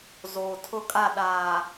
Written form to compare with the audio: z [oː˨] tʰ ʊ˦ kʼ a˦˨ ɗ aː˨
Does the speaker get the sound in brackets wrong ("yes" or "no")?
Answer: no